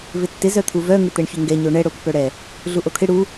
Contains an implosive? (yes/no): no